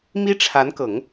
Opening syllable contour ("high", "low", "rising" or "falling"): high